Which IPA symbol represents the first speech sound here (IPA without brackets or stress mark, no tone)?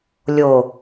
lʲ